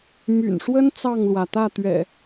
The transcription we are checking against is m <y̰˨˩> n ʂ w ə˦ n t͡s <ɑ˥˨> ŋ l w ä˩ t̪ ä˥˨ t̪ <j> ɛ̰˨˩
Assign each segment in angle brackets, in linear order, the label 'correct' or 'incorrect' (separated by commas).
correct, correct, incorrect